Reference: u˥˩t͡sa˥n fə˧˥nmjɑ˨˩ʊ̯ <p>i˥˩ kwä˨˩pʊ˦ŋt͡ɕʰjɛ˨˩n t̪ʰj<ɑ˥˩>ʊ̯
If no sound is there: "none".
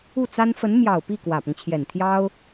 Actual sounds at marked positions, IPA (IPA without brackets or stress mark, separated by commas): p, ɑ˥